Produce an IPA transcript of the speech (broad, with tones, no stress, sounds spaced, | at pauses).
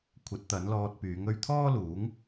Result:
kʷʰ ɐ˨˥ t̚ t̪ ɐ˨˥ n l ɔː˧ t̚ p yː˨˥ ŋ ɵ˧ ɥ t̪ʰ ɔː˥ l uː˨˥ ŋ